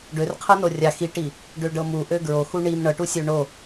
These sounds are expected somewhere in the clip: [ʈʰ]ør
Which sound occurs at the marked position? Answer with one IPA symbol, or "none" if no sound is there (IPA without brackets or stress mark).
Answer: ɖ